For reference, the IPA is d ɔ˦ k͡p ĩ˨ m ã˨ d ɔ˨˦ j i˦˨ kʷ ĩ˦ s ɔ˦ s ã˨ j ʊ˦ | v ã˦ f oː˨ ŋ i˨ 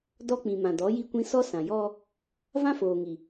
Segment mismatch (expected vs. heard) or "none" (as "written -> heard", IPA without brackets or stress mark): ʊ˦ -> ɔ˦